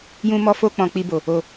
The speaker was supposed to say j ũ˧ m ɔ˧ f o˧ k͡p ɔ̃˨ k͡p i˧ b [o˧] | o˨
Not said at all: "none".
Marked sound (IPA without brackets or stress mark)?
o˨